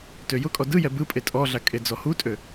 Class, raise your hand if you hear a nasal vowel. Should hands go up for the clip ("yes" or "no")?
no